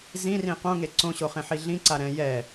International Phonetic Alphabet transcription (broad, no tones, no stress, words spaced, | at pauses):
zĩrĩ qõŋe ǀõɕoχẽħi ɮĩǀa ɾɛ̃ jɛ